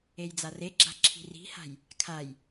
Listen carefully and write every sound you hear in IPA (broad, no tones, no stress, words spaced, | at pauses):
ejd͡zareɡ͡ǁa̤ ǁʰi̤ri̤ha̤j | kʰaj